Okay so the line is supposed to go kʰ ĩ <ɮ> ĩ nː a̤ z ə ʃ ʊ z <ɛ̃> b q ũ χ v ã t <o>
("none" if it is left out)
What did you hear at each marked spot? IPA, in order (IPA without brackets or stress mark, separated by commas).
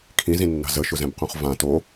z, ɛ̃, o